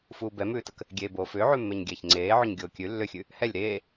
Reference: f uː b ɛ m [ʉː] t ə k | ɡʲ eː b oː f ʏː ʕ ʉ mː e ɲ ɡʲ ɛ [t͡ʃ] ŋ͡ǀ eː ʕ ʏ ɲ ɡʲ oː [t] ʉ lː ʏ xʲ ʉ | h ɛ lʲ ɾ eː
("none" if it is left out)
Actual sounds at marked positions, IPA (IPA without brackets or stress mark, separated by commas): ʉː, ç, kʲ